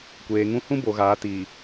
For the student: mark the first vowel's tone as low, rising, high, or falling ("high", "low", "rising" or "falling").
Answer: low